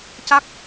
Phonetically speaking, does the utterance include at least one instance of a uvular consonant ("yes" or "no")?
no